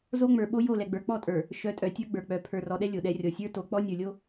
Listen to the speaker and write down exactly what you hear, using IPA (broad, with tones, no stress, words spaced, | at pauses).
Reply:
zo˦ŋ͡mə˞˨ ɓo˦ jo˦˨ lɛ˨ɡ͡bə˞˨k͡pɔ˦˨tʼə˞˨ | ʃœ˨˦tʼœ˨tʲə˞˦ɡ͡bə˞˨ k͡pœ˨ pʰə˞˨rɔ˨ɗɛ˦ lʲo˨ɗɛ˦ rʲɔ˨sʲə˞˦to˨˦ k͡pɔ˦nʲə˞˨lʲo˦